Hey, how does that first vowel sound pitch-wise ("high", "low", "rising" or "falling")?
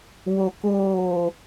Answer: low